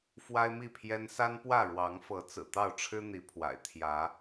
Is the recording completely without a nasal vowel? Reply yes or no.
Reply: yes